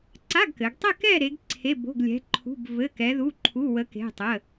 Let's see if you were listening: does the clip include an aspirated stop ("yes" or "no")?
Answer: yes